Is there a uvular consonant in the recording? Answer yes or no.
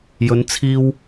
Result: no